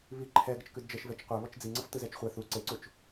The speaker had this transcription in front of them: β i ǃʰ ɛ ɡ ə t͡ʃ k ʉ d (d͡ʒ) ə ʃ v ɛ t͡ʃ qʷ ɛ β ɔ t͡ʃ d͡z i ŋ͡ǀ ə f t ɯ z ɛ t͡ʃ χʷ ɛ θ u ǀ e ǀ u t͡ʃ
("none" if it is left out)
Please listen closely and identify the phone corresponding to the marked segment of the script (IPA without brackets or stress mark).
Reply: d͡ʒ